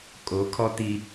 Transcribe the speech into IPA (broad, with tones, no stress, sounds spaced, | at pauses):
kʼ o˨˦ kʰ ɔ˦ t̪ i˦